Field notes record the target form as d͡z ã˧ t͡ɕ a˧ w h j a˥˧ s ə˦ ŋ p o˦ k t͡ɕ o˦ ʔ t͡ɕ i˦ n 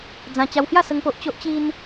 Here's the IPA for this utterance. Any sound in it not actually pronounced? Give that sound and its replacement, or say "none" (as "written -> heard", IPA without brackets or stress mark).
k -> ʔ